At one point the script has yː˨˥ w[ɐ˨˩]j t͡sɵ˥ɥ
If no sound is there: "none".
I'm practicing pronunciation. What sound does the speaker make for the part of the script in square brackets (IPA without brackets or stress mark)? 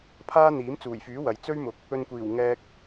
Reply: ɐ˨